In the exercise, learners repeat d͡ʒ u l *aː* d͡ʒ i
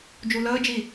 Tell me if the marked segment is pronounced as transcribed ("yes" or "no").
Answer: no